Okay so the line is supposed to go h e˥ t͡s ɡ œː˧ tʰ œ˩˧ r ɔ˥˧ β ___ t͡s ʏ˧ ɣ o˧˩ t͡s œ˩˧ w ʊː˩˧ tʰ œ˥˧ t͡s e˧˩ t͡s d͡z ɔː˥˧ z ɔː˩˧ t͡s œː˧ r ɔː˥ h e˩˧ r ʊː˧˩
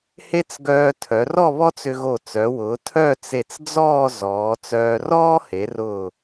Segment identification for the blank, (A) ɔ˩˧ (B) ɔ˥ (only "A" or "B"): B